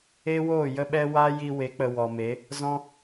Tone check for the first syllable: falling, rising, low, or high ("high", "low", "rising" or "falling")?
high